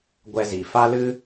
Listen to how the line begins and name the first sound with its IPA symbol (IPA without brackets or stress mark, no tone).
ɡʷ